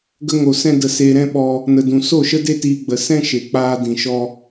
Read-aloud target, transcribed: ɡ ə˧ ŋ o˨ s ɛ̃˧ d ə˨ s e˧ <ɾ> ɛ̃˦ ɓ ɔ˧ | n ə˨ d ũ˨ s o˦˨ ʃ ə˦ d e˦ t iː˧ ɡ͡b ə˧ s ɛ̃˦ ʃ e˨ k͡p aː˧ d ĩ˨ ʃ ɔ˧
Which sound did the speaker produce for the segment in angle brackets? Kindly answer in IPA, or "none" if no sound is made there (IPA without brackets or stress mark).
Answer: ɾ